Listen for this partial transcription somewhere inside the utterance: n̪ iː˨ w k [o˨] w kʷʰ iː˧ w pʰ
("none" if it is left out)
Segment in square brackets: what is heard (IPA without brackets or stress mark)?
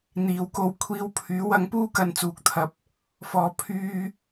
o˧